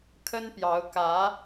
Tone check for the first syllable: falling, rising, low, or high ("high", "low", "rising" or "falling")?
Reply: high